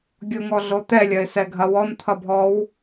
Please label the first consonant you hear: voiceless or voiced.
voiced